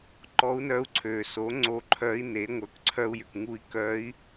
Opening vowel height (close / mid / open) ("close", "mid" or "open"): mid